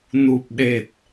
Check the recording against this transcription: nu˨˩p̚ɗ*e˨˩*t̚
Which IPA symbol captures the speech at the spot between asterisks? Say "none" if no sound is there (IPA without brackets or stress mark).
e˨˩